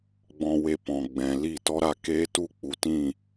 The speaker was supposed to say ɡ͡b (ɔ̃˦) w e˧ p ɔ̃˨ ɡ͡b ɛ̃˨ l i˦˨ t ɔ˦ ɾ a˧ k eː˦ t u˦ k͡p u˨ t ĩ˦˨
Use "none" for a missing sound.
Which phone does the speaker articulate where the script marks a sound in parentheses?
ɔ̃˧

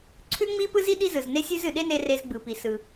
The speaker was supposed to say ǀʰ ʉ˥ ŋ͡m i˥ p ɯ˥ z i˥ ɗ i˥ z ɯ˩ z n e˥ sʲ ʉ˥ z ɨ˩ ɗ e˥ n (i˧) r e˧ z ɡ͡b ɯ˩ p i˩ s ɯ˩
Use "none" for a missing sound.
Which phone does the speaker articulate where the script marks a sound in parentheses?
e˧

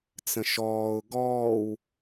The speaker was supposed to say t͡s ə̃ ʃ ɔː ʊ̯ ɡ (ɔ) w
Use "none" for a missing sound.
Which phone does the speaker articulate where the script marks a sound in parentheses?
ɔː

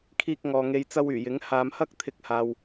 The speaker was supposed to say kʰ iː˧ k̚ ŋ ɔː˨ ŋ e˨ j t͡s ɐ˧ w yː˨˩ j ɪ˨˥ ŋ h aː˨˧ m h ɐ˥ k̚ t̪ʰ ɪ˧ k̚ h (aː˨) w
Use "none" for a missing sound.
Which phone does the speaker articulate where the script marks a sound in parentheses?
aː˨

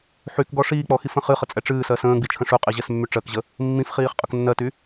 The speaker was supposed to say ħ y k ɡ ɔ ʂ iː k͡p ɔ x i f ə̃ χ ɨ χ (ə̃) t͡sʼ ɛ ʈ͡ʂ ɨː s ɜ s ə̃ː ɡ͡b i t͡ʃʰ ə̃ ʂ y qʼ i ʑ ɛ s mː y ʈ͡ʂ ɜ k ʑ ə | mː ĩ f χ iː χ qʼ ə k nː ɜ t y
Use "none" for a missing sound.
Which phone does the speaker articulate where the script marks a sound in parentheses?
ə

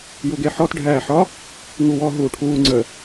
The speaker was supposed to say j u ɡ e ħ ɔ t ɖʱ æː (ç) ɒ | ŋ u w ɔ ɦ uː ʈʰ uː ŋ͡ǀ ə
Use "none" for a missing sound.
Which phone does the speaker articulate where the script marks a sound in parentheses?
ħ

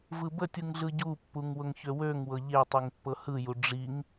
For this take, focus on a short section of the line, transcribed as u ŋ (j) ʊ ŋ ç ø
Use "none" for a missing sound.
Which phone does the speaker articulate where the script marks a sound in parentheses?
w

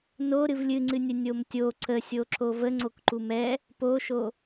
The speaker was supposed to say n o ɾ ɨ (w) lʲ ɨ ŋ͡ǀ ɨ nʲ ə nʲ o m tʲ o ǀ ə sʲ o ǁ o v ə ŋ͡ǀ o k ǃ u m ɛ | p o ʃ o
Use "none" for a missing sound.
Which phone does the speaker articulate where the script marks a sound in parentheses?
v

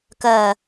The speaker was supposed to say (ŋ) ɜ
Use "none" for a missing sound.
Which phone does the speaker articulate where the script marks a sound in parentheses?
k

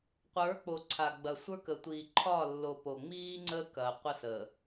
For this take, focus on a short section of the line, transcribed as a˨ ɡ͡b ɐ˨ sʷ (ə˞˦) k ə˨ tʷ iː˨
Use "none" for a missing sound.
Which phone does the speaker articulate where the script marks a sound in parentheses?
ə˞˦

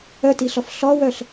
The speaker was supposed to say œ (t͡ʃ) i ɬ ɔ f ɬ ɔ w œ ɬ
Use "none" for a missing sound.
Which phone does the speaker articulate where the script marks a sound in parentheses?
t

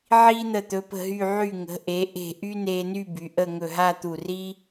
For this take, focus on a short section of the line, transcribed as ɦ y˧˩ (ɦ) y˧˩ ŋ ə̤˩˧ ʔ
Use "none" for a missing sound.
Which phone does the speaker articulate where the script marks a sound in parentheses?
ʕ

